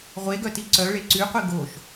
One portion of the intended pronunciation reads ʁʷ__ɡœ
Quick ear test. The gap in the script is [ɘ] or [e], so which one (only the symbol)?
e